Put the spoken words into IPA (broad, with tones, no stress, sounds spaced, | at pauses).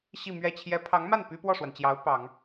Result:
ɕ i˥˧ m ɥ ɛ˥˩ t͡ɕʰ j ɛ˧˥ pʰ ɑ˧˥ ŋ m a˥˩ n p y˥ p w ɔ˥˩ ʂ w a˩ n t͡ɕ j ɑ˧˥ ʊ̯ p ɑ˨˩˦ ŋ